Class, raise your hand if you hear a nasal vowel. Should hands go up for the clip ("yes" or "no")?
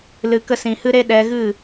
yes